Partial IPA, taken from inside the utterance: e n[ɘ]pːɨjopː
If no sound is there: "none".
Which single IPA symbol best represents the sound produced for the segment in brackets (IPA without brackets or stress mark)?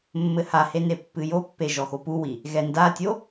e